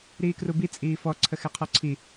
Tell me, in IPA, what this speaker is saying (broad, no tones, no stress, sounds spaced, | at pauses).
ɾ iː k r u b i t͡sʼ iː f ɔ ǀʰ ə x ɛ qʰ ɔ ǀʰ i